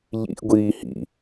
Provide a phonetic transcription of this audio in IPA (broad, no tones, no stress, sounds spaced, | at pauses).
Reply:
ʎ ḭ ʔ ɡʷ iː h ḭ